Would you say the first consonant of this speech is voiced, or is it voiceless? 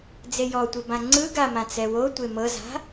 voiced